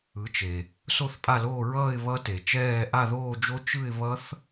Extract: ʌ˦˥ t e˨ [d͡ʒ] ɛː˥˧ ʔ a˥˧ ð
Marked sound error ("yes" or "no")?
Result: yes